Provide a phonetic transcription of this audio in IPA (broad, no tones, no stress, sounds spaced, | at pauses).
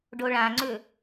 ɖ o ɭ ã ŋ͡ǀ ʏ